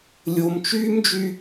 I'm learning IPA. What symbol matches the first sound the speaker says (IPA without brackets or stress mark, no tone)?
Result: lʲ